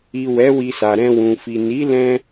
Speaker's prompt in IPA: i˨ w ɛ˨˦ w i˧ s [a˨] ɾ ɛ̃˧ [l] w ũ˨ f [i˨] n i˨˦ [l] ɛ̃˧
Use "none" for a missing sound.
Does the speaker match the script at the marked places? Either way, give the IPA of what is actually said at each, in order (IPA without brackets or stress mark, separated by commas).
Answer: a˨, none, i˨, l